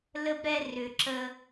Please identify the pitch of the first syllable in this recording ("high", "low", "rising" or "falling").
high